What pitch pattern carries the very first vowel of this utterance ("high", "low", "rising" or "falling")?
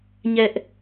high